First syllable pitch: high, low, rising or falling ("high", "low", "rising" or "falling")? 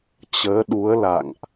rising